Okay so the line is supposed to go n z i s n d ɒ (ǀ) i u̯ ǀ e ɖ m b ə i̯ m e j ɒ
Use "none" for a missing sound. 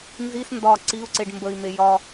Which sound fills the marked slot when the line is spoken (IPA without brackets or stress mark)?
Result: ǀ